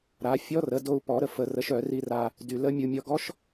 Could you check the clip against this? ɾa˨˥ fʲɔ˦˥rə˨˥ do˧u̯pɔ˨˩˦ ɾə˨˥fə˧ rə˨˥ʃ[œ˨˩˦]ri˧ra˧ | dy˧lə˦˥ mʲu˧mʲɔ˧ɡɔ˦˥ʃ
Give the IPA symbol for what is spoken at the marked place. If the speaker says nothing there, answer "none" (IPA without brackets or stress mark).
œ˨˩˦